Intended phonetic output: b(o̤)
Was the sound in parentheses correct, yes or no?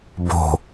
yes